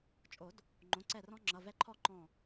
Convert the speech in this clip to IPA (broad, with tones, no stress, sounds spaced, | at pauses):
t͡ʃʼ o˨˩˦ d | ŋ͡ǃ õ˩˧˩ ǀ ɛ˧˩ r ɔ̃˦ ŋ͡ǁ ʌ˩˧˩ v ɛ˦ ǃʰ ɔ˥˨ ǃ ɔ̃˧˩